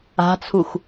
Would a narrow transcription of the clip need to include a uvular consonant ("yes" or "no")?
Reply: no